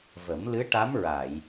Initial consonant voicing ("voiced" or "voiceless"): voiced